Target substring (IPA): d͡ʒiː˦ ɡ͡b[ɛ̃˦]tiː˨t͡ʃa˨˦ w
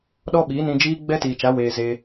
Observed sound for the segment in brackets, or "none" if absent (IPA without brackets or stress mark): ɛ˦